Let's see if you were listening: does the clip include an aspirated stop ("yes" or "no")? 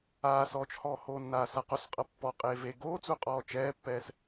no